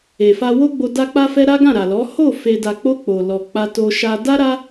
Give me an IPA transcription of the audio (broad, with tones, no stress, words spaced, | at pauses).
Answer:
e˨fa˧wo˦ɡ͡bo˧ da˧k͡pa˧fɛ˧ ɾa˦ɡã˦˨ɾa˨lɔ˨˦ ho˦˨ fe˧ da˨k͡po˧ k͡po˨ lɔ˨k͡pa˧to˧ʃa˧ da˦ɾa˦